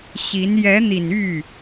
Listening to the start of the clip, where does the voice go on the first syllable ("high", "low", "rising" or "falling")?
rising